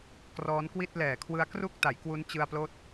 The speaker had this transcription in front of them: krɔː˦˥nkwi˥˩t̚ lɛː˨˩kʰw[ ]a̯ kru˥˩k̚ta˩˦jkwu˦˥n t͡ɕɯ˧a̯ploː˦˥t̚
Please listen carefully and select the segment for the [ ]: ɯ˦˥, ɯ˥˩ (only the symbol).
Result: ɯ˦˥